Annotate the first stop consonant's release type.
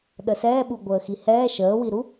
implosive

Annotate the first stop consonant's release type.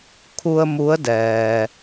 aspirated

